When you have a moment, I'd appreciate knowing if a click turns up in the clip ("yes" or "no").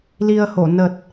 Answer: no